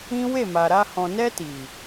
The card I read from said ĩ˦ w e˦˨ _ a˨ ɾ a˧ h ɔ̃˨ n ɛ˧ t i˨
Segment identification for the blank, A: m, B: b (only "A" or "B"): A